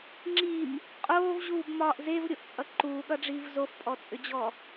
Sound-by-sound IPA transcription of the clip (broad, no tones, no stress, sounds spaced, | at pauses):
ŋ͡ǁ i m | qʼ oː v ʑ uː b m ɒː ʔ z e v ɾʲ o ʔ t͡sʼ ʌ ǃ uː ɠ ʌ ɖ͡ʐ iː v z o f pʼ ɔ t͡sʼ ʏ d͡ʑ ɔ